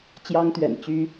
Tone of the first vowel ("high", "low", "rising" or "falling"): high